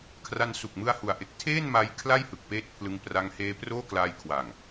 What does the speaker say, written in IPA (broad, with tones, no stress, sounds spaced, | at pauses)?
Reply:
kʰ r a˧ n s u˨˩ k̚ m ɯ˦˥ a̯ h u˩˦ a̯ ʔ e˨˩ k̚ tʰ eː˥˩ n m a˧ j kʰ l a˥˩ j h ɯ˨˩ k̚ p eː˦˥ t̚ pʰ l ɯ˧ ŋ p r a˦˥ ŋ h eː˦˥ p r oː˥˩ k l aː˧ j kʰ w aː˨˩ ŋ